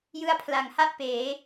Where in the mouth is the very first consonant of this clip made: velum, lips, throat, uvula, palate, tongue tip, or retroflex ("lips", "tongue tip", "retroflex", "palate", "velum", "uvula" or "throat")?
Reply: palate